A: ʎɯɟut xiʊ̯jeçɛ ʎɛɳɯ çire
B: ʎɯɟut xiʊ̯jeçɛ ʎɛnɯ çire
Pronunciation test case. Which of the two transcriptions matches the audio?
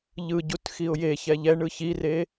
A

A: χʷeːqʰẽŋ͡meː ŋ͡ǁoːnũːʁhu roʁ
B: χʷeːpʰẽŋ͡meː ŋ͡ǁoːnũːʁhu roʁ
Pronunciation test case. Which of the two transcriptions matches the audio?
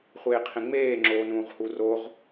A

